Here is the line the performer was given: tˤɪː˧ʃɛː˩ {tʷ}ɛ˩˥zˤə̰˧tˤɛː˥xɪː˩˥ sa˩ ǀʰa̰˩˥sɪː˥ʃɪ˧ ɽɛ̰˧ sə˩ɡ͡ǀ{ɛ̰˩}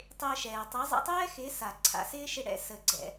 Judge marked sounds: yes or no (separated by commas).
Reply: no, yes